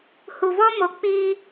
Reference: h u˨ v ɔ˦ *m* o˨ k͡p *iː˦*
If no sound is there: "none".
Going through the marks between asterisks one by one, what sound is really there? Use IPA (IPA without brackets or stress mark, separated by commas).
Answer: m, iː˦